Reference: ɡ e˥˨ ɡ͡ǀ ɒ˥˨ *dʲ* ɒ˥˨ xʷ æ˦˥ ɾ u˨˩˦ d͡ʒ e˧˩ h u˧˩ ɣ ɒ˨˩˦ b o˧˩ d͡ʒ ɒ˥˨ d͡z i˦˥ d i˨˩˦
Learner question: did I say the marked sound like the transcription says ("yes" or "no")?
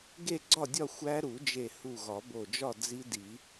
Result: yes